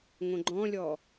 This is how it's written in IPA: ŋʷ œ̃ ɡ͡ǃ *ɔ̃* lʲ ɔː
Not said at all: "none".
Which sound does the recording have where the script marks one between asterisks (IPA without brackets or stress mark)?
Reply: ɔ̃